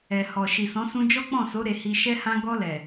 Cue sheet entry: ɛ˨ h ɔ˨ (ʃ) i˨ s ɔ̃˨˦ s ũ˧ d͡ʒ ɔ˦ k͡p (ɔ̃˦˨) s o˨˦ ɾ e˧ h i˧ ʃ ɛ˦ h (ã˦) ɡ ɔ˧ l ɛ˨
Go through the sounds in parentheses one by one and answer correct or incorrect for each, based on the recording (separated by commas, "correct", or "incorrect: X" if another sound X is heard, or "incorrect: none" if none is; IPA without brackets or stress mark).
correct, correct, correct